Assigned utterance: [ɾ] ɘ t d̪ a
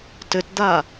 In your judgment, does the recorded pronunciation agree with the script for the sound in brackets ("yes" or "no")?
no